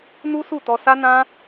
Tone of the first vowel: high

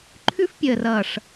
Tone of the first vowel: high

